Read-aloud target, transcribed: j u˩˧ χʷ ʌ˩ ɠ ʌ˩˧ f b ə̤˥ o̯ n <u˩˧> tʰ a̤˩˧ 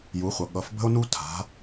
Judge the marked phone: incorrect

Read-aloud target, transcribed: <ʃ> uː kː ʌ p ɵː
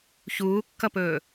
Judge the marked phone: incorrect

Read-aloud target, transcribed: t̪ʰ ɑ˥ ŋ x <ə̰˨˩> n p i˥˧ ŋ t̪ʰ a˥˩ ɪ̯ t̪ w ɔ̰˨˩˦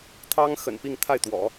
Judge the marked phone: correct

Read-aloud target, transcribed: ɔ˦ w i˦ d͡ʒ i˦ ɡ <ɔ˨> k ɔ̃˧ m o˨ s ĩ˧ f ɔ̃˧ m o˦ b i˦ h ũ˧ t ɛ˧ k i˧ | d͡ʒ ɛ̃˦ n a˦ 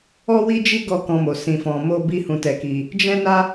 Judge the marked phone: incorrect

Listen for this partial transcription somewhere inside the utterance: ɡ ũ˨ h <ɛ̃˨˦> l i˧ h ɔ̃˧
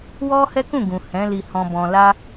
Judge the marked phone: correct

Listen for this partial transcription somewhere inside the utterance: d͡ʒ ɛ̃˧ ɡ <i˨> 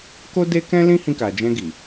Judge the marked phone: correct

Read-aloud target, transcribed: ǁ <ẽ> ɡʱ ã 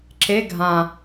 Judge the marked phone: incorrect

